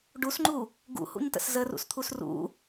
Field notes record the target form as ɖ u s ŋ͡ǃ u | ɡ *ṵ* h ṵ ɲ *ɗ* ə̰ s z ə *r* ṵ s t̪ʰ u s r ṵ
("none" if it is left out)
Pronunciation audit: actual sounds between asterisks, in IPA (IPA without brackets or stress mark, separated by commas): ṵ, t, r